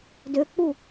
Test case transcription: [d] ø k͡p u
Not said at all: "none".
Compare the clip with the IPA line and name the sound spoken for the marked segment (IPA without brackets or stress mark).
d